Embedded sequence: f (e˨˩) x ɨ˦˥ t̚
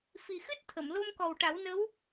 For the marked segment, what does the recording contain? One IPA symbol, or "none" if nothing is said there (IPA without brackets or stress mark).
i˨˩